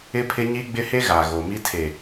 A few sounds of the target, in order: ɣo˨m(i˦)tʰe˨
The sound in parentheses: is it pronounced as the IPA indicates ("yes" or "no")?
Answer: yes